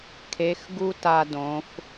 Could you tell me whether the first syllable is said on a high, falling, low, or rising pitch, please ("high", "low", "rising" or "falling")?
rising